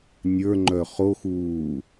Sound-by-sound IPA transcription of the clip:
nʲə˞ŋ͡ǃœ χox uː

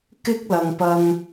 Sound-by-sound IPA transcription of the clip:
kɪ˥k̚lɐ˨ŋpɐ˧ŋ

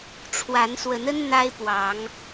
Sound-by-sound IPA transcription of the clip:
ʈ͡ʂʰwa˨˦nswə˨˦nə˦n n̪a˦ɪ̯pwɑ˨˦ŋ

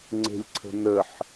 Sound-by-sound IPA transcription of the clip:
ŋ͡ǀe̤lʲǀʰə̤nəħ

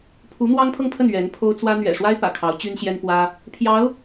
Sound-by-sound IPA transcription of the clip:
pʰu˧˥ n̪wɑ˥ŋpʰɤ˥˧ŋpʰə˥˩n ɥɛ˧˥npʰo˥ʊ̯ t͡swä˥ n̪ɥɛ̰˨˩ʂwa˥ɪ̯ pä̰˨˩kʰɑ˧˥ʊ̯ t͡ɕy˥nɕjɛ˥npwä˥ | pʰjɑ˧˥ʊ̯

